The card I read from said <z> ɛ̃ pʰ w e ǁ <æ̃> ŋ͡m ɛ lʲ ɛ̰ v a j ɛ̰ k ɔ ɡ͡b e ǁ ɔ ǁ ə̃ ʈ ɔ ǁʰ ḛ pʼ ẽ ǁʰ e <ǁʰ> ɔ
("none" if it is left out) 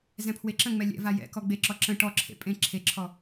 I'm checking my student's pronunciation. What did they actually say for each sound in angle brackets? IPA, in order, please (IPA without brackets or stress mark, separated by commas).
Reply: z, ə̃, ǁʰ